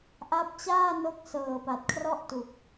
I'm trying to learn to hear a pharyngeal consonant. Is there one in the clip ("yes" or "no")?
no